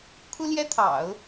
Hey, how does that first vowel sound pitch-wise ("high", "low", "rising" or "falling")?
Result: high